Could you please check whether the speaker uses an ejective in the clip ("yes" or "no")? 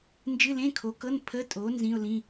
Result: yes